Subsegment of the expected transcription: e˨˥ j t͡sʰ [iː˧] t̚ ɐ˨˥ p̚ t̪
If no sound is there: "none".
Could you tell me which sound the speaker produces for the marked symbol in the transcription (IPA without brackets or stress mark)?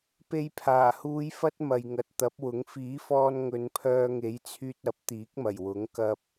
yː˧